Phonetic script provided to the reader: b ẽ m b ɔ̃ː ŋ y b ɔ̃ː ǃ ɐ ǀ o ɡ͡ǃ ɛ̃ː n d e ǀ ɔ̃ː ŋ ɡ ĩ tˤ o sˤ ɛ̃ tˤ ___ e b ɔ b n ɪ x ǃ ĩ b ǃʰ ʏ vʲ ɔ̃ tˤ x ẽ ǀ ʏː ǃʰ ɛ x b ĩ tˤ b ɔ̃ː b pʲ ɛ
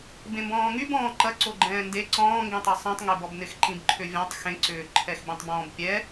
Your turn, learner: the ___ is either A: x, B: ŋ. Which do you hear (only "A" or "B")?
B